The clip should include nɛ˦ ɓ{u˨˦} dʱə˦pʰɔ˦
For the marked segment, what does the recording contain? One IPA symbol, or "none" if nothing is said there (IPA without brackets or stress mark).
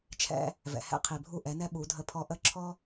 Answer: u˨˦